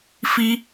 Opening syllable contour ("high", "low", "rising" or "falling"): high